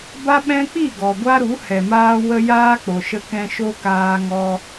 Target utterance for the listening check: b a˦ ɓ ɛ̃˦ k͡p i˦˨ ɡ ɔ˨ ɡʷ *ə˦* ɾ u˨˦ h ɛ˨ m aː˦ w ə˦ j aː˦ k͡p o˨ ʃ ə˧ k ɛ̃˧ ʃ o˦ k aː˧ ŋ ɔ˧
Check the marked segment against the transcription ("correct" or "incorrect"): incorrect